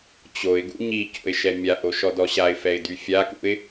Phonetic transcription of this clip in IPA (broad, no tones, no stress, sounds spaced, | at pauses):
t͡ɕ o ɪ̯ ɡ ṵ ɲ i c o̰ ɪ̯ ʃ ɛ mʲ a ʔ o ʃ ɔ d ɔ ɕ a ɪ̯ f ɛ ɪ̯ d y fʲ a k ṵ ɪ̯